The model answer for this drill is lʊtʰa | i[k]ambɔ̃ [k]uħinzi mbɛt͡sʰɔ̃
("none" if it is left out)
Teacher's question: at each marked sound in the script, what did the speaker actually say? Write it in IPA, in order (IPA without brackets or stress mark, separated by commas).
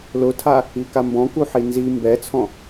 k, k